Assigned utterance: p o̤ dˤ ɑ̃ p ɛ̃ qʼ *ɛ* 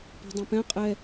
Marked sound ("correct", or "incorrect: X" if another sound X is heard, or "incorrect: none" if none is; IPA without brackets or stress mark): correct